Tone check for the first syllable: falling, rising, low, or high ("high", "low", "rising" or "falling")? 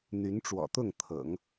rising